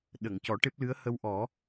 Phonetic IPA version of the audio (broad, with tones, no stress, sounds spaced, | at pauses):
ɗ ə˨˩˨ ŋ c ɔ˨˩˦ ʈ e˦˥ p̚ l ɨ˧˥ ə̯ h ə˧ w ʔ ɔ˨˩˦